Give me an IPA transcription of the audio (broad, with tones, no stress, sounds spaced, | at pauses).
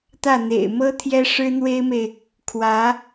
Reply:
t̪ ä˥˩ n̪ ḛ˨˩ ɪ̯ m ɤ˥ t̪ʰ j ɛ˥ ʂ ɻ̩˥ n̪ w e˥ ɪ̯ m e˨ ɪ̯ | kʰ w ä˧˥